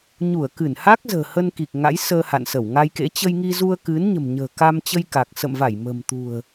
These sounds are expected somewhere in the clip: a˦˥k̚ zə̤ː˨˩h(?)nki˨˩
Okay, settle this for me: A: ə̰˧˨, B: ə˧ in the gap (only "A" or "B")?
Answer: B